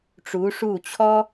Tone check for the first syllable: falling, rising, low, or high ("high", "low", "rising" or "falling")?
rising